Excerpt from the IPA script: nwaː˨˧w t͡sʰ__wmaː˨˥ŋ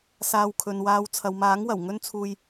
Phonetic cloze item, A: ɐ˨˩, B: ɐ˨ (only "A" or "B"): B